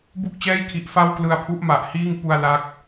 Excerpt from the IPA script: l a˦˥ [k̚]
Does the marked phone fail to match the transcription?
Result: no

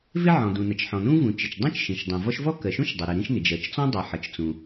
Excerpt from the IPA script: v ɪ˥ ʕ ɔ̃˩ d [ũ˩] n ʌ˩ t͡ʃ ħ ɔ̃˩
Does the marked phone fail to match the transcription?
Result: no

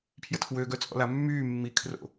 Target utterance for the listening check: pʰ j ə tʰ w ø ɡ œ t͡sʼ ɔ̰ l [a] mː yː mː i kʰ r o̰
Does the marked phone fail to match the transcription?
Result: no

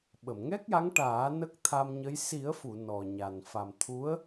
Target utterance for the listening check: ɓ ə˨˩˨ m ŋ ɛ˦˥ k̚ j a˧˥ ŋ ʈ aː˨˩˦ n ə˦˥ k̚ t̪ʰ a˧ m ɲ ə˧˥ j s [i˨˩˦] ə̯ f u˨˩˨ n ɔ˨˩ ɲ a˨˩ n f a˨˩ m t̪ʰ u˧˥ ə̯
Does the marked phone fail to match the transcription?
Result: no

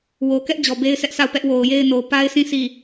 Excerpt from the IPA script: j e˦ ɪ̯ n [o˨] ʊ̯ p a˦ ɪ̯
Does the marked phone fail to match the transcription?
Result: no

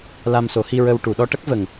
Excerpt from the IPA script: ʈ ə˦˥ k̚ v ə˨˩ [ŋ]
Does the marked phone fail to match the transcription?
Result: no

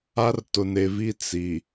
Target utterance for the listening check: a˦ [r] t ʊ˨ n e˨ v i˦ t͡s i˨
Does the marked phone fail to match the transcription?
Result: no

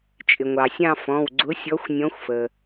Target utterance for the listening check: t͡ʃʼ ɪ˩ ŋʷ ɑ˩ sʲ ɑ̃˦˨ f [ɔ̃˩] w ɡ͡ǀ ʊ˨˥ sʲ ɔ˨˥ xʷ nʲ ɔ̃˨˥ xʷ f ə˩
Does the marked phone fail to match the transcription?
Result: yes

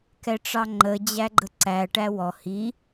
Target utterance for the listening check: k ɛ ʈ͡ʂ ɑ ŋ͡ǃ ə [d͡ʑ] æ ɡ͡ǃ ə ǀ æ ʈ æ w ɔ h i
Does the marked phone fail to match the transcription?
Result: no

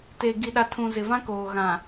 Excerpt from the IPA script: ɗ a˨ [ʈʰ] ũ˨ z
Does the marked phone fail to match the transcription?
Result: yes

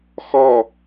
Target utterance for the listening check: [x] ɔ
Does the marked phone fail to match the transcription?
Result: no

